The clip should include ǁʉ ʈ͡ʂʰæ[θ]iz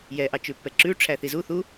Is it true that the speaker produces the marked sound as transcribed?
yes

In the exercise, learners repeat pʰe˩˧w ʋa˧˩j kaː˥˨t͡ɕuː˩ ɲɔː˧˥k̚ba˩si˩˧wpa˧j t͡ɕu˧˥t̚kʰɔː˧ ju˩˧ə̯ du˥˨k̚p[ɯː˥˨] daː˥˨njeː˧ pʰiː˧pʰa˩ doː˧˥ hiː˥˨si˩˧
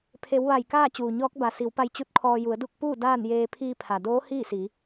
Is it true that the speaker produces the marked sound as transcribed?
no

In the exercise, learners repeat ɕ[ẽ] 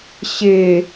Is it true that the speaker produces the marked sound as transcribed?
no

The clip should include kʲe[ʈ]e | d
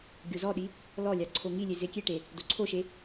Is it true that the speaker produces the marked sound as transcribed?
yes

